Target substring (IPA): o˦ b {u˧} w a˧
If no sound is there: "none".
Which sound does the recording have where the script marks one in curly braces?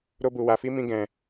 u˧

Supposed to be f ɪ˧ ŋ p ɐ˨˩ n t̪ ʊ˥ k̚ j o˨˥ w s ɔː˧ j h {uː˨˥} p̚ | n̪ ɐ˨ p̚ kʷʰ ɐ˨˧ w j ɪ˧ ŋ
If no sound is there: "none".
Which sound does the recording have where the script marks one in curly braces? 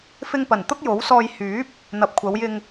yː˨˥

